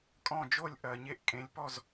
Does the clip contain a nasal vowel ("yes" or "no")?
yes